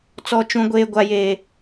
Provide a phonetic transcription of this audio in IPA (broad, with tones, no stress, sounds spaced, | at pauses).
t͡s ɔ˦ t͡ʃ ũ˦ ɡʷ eː˦ ɡʷ a˦ j eː˦